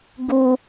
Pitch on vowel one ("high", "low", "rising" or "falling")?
high